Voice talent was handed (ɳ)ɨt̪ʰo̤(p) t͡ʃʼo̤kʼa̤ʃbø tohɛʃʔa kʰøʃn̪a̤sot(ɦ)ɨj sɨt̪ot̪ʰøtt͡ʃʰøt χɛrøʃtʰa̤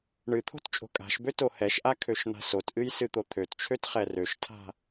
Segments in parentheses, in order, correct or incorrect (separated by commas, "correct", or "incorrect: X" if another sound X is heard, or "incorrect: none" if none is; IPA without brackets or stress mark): correct, incorrect: t, incorrect: ʔ